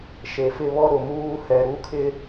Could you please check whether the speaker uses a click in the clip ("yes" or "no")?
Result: no